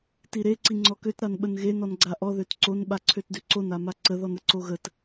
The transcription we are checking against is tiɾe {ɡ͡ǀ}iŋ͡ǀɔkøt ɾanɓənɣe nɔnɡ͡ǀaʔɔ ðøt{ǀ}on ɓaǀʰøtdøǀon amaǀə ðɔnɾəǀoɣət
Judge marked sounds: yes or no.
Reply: no, yes

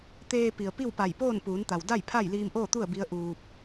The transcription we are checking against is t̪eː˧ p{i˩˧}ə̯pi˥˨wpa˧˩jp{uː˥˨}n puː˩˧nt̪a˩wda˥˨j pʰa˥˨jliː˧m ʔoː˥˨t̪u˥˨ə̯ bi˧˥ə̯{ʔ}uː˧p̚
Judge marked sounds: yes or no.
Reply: no, no, yes

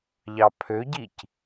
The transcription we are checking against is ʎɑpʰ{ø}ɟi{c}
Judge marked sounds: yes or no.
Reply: yes, yes

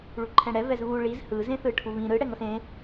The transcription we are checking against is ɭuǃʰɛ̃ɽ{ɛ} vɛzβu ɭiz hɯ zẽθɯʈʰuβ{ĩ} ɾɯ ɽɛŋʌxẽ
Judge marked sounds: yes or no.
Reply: yes, yes

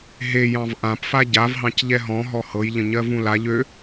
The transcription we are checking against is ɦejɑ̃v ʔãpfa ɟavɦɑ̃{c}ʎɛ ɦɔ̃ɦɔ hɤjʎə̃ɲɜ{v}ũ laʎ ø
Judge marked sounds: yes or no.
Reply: yes, yes

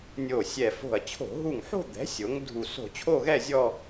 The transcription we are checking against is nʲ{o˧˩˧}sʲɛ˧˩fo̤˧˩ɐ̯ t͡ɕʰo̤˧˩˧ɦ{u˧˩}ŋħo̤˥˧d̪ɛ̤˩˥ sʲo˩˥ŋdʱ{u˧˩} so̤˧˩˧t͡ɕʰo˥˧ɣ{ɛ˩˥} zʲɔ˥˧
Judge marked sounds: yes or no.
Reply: no, yes, yes, no

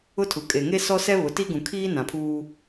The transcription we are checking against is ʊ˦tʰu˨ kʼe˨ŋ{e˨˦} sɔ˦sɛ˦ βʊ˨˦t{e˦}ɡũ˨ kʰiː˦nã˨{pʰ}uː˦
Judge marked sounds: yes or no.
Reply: no, no, yes

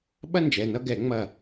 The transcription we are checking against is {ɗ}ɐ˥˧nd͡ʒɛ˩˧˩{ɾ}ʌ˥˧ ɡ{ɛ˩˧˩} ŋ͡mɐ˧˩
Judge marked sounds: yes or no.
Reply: no, no, no

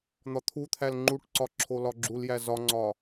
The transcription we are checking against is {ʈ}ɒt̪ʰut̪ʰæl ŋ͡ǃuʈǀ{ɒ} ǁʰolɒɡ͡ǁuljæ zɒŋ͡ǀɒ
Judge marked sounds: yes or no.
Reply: no, yes

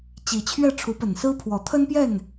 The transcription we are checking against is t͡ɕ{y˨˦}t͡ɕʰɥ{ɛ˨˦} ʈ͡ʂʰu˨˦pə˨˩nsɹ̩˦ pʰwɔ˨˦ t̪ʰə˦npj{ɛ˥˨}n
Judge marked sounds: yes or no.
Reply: no, no, yes

